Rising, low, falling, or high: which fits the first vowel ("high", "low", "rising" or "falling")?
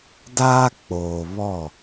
high